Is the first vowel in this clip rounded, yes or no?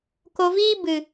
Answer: yes